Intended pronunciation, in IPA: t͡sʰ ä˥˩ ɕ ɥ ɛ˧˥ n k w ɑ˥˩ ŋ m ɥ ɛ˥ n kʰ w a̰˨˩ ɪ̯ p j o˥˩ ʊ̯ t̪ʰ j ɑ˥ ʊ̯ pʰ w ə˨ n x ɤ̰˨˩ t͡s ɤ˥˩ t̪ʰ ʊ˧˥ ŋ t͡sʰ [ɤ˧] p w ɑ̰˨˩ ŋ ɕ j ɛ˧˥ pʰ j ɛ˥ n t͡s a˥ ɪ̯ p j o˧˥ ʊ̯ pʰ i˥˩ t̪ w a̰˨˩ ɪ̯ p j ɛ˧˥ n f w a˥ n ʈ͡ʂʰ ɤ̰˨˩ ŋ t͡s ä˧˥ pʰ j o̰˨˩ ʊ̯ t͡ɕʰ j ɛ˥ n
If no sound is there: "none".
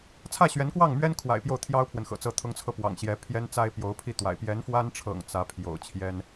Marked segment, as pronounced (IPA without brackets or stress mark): ɤ˧